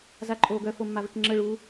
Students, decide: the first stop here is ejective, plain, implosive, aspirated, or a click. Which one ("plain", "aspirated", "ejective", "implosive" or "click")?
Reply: click